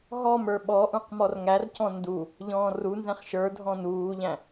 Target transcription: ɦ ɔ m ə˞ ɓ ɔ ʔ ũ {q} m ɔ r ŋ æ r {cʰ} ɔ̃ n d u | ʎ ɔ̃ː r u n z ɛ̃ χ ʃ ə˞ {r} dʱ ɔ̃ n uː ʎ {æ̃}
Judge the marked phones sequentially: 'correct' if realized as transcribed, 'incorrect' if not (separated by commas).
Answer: correct, incorrect, incorrect, correct